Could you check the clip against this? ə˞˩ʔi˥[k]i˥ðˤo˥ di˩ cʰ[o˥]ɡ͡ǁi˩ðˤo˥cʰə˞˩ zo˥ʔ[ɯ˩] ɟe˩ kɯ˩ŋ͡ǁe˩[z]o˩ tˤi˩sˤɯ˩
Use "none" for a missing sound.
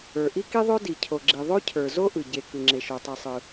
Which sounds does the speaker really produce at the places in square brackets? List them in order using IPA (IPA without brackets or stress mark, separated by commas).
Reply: k, o˩, ɯ˩, ʃ